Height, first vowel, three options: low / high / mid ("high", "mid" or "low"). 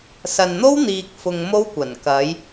low